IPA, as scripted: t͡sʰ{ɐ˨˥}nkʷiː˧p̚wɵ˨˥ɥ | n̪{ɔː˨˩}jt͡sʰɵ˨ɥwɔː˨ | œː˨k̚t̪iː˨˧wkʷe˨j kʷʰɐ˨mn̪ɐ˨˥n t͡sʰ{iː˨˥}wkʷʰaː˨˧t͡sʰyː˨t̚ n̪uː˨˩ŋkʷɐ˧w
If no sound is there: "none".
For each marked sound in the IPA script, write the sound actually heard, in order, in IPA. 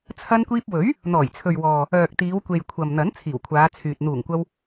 ɐ˧, ɔː˨˩, iː˨˩

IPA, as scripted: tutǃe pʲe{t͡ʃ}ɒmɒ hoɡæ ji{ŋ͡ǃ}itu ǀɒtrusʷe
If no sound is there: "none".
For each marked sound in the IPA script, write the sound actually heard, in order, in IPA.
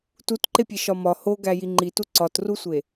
ʃ, ŋ͡ǃ

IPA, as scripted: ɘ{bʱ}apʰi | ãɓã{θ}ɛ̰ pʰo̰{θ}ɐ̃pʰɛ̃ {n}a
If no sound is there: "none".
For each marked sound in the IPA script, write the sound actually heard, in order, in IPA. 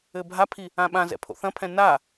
bʱ, z, θ, n

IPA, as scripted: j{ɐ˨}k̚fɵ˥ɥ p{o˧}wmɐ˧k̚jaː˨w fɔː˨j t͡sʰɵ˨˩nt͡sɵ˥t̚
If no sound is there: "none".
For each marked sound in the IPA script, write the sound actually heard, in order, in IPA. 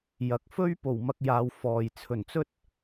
ɐ˨, o˨˩

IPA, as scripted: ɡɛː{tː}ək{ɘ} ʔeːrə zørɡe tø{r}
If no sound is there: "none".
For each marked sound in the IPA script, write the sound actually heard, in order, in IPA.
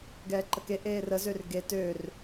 ǃ, e, r

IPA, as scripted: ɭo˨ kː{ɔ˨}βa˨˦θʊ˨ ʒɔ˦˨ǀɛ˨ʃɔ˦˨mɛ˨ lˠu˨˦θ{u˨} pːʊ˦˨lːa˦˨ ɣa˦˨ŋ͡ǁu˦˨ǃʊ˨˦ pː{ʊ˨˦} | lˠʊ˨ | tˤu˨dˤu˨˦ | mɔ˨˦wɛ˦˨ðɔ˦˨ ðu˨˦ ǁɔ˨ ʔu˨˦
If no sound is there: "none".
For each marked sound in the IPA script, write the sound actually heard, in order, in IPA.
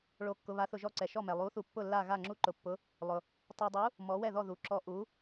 ʊ˨, u˨, ʊ˨˦

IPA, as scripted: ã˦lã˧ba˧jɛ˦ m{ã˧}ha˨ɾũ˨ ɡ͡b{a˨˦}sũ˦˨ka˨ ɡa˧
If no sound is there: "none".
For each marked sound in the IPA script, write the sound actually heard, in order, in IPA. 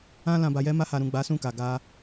a˧, a˨˦

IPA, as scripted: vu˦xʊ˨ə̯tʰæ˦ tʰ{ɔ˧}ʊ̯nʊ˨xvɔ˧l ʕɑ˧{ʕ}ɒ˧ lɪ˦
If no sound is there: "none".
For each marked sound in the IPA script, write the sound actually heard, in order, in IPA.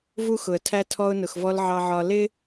ɔ˧, ʕ

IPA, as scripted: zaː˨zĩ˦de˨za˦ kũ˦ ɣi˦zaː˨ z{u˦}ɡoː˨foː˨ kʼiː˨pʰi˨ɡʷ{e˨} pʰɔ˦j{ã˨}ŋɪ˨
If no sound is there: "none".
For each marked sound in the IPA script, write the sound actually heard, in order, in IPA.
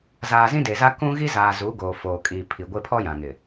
u˨˦, e˦, ã˨

